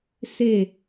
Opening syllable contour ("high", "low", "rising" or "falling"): falling